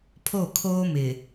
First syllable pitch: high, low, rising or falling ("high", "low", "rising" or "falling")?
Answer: falling